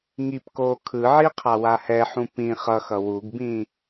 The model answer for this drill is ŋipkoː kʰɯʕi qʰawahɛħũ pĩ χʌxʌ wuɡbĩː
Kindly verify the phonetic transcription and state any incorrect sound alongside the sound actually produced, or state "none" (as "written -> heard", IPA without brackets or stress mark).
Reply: none